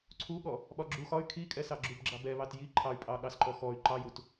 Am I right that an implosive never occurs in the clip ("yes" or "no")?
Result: no